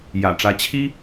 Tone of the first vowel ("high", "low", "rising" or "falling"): low